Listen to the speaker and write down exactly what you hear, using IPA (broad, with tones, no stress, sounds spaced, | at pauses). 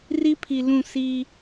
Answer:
r i˦ pʰ i˨ l ũ˦˨ s i˦